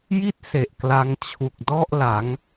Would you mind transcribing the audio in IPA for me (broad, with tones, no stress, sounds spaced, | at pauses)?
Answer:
j i˥˩ t̚ s e˨˩ ʔ k l a˧ ŋ t͡ɕʰ u˨˩ k̚ d ɔ˥˩ ʔ l a˩˦ ŋ